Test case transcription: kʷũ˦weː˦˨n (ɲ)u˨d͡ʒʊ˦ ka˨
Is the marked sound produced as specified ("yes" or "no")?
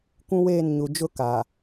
yes